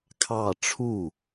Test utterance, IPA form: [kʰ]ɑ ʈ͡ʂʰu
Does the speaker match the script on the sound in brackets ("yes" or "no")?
yes